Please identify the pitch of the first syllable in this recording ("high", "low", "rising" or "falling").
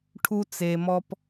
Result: high